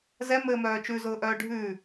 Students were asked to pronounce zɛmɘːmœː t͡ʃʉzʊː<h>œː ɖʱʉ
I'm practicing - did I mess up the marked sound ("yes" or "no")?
yes